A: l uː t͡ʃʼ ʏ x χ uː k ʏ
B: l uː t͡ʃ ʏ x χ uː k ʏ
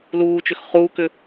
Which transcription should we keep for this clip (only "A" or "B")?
B